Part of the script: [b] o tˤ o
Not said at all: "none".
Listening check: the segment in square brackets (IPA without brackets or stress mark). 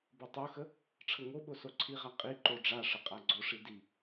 b